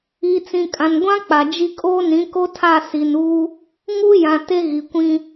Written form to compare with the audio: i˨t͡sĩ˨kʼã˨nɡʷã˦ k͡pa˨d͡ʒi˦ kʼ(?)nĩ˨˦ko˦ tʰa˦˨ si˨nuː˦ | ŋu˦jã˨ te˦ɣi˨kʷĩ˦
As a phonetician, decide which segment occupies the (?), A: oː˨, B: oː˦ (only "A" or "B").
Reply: B